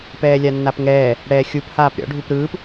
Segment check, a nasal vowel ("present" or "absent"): absent